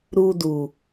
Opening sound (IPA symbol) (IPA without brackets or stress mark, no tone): ɾ